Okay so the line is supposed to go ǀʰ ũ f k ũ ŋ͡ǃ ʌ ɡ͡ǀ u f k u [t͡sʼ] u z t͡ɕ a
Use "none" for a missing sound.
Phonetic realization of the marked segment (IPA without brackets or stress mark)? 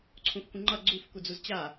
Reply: d͡z